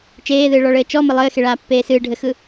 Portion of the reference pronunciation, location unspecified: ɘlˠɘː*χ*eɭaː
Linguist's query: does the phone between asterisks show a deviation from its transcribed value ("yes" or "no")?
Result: yes